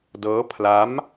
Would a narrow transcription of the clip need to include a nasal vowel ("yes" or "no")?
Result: no